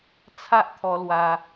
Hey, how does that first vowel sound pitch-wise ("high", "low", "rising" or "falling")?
high